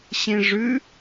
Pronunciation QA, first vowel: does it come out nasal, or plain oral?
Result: nasal